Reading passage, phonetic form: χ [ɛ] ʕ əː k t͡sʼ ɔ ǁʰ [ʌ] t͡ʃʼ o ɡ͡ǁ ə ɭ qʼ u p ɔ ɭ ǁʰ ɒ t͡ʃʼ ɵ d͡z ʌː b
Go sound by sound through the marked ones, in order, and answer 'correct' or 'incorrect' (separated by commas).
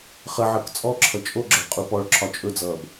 incorrect, correct